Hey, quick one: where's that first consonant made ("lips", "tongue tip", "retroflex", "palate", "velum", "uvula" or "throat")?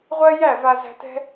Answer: uvula